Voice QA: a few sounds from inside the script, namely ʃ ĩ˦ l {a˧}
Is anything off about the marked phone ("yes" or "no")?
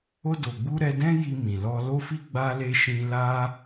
no